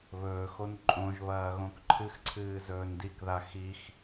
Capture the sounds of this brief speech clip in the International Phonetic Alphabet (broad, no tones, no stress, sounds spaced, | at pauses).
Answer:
β ɵː x o n ǃʼ õ ʒ β ɐː ɣ õ k ǃʰ ɨ x ǀʰ ɨː z ɵː n d i k ð a x i x